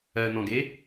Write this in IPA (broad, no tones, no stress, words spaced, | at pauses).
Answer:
ɜn̪ɔ̃ɡe